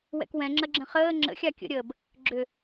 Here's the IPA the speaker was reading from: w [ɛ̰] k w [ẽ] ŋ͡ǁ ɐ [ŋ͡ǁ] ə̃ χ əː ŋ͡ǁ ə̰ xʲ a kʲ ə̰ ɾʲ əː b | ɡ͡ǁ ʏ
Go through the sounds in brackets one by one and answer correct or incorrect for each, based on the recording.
correct, incorrect, incorrect

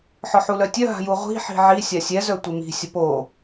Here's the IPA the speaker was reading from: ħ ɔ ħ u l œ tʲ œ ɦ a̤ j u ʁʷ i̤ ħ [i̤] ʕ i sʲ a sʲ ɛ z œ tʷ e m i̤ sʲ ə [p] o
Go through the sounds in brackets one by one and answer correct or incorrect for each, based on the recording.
correct, correct

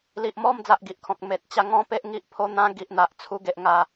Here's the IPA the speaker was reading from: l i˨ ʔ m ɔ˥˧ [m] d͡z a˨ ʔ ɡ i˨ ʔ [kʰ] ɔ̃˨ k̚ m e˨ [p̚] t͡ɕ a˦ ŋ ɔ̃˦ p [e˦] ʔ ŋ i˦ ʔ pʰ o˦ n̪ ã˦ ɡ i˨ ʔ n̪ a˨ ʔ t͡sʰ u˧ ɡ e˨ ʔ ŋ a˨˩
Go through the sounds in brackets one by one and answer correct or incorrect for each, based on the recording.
correct, correct, incorrect, correct

